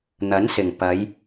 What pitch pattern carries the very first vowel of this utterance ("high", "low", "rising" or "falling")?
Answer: rising